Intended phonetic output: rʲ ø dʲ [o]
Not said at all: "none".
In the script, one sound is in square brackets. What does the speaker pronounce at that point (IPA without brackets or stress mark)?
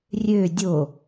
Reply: o